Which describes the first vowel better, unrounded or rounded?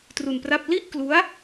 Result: rounded